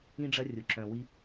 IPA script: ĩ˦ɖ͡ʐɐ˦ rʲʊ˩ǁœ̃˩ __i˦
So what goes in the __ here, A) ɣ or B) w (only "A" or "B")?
B